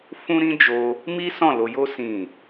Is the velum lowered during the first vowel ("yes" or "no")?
yes